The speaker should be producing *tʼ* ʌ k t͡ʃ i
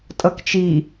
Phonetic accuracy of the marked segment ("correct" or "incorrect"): correct